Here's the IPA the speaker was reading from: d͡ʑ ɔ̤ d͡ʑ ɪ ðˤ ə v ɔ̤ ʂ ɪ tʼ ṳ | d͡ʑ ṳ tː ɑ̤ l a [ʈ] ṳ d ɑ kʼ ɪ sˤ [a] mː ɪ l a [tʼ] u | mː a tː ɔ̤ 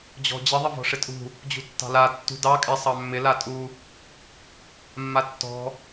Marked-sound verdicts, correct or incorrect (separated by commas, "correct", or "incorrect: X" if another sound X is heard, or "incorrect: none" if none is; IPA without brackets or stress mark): incorrect: tː, incorrect: ɑ, correct